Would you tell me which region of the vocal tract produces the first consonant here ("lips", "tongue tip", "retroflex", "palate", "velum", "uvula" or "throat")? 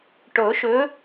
retroflex